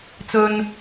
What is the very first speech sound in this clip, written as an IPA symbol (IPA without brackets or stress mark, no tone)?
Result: t͡s